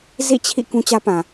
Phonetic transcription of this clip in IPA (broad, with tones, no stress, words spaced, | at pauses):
zḭ˦˨t͡ɕʰḭ˦˨ kũ˦t͡ɕä˦pã˨